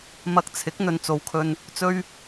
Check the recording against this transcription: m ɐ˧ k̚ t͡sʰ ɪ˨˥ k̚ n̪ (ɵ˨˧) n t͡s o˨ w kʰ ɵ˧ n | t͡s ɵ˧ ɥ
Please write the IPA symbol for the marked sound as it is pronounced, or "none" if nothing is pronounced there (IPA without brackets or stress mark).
ɵ˨˧